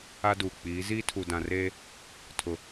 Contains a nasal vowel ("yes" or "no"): yes